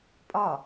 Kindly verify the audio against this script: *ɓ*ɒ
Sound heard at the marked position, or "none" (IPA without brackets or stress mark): pʼ